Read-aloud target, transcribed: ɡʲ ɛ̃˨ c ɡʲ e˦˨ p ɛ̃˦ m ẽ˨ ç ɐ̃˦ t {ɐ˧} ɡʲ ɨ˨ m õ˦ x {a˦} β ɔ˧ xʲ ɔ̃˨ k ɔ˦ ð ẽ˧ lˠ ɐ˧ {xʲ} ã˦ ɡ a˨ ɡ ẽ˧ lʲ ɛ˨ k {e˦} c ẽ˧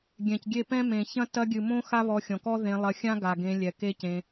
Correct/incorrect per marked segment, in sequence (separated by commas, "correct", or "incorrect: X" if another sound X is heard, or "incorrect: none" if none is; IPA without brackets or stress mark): correct, correct, correct, correct